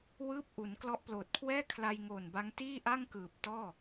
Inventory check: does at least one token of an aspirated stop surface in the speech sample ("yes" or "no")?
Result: yes